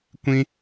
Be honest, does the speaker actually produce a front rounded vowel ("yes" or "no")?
no